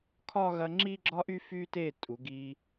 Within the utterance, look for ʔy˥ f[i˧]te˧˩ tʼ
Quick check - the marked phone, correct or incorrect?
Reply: incorrect